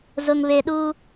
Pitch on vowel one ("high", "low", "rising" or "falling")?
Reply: low